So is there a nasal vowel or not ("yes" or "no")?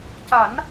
no